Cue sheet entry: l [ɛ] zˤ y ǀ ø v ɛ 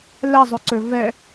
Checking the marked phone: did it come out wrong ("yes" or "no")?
no